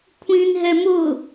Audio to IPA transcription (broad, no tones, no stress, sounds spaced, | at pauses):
kʷʰ ĩ n ɦ ɛ m ʊ